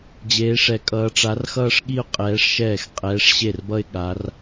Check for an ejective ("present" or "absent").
present